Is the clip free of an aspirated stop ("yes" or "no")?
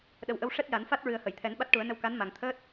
no